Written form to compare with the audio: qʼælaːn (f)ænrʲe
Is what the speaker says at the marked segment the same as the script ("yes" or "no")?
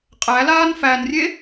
yes